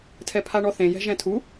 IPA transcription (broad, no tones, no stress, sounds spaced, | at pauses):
tʰ ɛ pʰ a ɳ ɔ θ ẽ j ɛ̤ ʒ ɛ̃ tʰ u